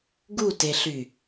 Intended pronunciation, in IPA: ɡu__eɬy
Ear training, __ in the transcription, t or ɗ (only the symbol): t